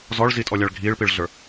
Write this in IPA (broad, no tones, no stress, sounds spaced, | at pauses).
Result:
z ɔ ɭ z i tʼ ɔ lʲ a ɭ ɡʱ iː ɭ p i ɭ ɮ ə˞